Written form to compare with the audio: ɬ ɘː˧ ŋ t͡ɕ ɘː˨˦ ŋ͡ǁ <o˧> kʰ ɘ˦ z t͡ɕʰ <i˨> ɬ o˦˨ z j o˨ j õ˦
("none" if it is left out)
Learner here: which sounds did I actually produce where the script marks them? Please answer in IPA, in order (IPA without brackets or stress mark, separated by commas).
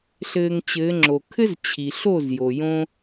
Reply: o˨, i˨